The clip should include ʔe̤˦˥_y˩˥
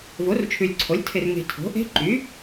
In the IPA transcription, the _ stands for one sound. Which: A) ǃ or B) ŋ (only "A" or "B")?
A